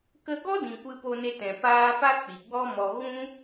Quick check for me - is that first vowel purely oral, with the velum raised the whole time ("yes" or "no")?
yes